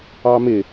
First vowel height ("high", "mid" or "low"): low